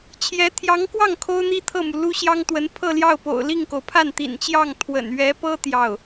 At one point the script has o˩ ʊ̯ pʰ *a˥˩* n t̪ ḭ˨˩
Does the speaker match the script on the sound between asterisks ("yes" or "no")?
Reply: yes